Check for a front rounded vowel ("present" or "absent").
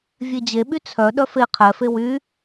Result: present